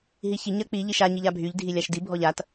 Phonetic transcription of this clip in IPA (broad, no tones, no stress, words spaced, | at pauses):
ɦiçi ɲɜk͡pi ʎiʃa ɲiʎabʱyʎ dʱilʲaʃdi bʱɔʎat